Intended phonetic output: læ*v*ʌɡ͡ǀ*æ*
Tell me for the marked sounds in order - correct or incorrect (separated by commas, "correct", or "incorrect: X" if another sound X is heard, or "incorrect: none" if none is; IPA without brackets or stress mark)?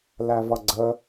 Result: correct, incorrect: ə